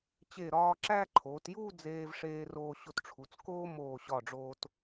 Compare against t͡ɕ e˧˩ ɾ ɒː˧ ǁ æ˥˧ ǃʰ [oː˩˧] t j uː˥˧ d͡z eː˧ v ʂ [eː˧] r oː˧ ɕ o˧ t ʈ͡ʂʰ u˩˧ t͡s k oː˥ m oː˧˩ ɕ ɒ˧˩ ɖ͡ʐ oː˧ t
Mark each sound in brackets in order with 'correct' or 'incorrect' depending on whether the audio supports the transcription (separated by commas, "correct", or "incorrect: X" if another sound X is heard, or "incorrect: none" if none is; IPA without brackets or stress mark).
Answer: correct, correct